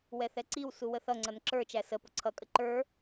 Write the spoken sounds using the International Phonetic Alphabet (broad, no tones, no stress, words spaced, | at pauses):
wɛθɛǀiw suwəθʌŋ͡ǀʌn ǁə˞ t͡ʃæsə pʊǀʰʌkʼə ǃə˞